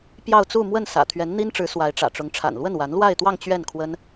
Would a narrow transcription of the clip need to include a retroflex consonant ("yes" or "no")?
yes